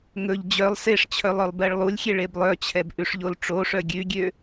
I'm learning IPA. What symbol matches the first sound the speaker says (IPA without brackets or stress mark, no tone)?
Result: ŋ